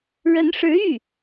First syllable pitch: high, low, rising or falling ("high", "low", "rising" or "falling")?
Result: rising